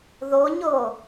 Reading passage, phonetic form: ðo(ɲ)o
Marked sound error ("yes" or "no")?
no